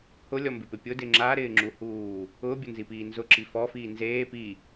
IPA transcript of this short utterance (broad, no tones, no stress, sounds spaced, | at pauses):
h ʊ lʲ ɔ m b ɪ p ɪ pʲ ʊ d ɪ ŋ͡ǁ a ɾ ɪː ŋ͡ǁ u h uː | ʊː bʲ ʊ n z i p iː n z ʊ ǁ i f ɔ f iː n z eː p i